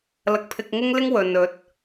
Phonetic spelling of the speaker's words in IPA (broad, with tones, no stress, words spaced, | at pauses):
lɐ˧k̚pʰɪ˧k̚ŋɪ˥ŋlɪ˥ŋ wɵ˨n ɵ˨˥t̚